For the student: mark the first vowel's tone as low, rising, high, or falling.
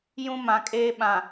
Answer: high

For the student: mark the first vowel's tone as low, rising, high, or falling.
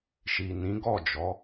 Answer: low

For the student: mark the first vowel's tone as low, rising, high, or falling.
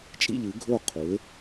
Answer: falling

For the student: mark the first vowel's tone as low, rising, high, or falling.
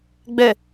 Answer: low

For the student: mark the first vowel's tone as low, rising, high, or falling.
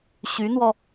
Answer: rising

